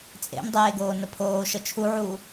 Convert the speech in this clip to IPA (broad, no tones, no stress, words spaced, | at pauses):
t͡sʼḛmdˤeːɡoːnə pʰoːʃə t͡ʃʰuʕuː